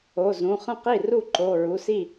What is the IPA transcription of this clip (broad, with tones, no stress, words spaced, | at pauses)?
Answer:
o˩˧˩zũ˩˧˩χə̃˥˩qi˥˩ ru˥˩ǃo˩˧˩ɹu˩˧˩si˥˩